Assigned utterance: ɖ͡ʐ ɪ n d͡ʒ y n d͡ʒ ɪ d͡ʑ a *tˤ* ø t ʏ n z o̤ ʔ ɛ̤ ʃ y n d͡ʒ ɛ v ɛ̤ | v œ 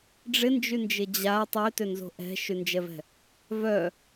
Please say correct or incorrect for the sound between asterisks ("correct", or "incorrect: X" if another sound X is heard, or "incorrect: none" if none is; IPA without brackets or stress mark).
correct